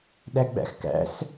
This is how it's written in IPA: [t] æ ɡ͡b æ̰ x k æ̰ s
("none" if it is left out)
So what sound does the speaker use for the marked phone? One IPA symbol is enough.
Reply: ɗ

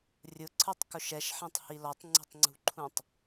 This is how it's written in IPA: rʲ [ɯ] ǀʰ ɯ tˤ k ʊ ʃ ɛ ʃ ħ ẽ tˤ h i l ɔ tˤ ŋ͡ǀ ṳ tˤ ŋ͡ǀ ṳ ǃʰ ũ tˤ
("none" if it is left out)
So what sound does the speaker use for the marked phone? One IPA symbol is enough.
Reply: ʊ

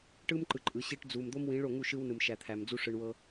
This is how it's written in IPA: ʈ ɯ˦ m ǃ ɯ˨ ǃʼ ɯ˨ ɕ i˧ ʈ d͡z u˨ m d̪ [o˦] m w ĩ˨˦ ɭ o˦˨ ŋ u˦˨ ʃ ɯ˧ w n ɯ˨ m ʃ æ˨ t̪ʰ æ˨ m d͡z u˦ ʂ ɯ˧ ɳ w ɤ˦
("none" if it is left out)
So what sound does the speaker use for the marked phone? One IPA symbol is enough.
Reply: o˦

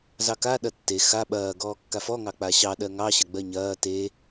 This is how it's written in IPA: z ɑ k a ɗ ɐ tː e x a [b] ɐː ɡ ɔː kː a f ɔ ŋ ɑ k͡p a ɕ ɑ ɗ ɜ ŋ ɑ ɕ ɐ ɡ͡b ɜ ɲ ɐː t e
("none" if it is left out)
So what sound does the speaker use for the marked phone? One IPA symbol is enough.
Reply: ɓ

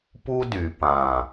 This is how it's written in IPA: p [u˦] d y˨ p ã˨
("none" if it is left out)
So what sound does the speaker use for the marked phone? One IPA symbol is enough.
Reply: u˦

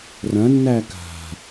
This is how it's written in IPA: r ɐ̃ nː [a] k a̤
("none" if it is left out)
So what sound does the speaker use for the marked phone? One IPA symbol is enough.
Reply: æ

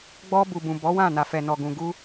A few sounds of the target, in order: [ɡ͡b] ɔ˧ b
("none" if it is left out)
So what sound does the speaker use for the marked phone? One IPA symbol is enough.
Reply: ɡ͡b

